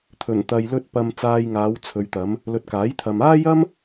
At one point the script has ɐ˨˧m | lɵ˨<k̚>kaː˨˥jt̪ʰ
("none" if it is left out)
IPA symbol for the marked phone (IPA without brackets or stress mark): t̚